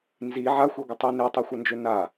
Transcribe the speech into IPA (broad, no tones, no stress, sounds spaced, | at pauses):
n z i ʕ a xʷ e ɡʷ ə tˤ i n e tˤ e xʷ ɐ n d͡ʒ ø n a